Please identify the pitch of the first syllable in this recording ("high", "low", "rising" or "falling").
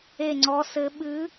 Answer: falling